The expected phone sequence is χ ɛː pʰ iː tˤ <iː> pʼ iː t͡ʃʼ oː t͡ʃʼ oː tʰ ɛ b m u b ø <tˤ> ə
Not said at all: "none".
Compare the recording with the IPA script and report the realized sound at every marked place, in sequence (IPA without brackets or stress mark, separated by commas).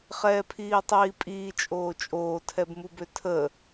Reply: iː, tʰ